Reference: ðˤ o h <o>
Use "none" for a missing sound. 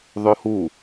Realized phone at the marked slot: u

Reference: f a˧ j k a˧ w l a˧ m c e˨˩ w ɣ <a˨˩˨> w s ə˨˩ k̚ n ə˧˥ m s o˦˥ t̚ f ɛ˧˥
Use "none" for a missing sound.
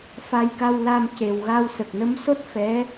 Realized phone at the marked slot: a˧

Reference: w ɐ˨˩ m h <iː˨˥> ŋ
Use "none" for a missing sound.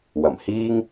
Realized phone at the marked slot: iː˥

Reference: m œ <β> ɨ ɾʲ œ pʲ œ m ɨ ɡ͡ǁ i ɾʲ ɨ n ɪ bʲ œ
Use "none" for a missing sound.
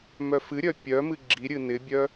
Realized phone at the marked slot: f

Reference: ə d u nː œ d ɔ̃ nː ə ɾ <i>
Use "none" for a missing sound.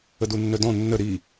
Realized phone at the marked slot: i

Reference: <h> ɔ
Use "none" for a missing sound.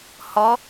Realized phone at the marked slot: h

